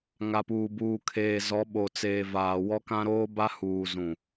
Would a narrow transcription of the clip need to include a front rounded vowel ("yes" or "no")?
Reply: no